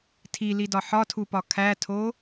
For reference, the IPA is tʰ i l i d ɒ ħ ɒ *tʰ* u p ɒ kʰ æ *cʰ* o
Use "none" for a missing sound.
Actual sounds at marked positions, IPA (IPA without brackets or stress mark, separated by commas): tʰ, tʰ